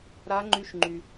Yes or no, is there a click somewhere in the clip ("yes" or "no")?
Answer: yes